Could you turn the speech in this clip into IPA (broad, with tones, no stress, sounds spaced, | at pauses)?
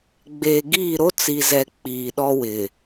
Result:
ɡ͡b eː˨ ɡ iː˦˨ ɾ o˦ t͡s i˨ z ɛ˨ k͡p iː˨ ɗ ɔ˦ w ɪ˨